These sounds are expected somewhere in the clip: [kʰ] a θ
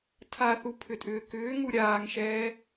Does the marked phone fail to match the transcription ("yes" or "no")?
yes